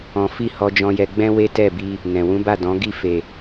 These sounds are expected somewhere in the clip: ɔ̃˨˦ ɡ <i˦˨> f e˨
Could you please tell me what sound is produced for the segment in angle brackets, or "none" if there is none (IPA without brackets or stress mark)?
i˦˨